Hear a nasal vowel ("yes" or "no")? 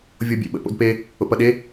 no